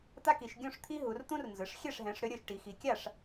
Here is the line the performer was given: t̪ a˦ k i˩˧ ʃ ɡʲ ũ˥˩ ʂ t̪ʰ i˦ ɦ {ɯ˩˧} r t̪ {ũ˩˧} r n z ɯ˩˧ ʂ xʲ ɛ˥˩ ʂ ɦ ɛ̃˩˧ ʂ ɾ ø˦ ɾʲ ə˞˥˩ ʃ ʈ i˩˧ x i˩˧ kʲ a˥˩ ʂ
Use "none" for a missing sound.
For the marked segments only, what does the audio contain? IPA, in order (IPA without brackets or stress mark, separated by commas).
u˩˧, ũ˦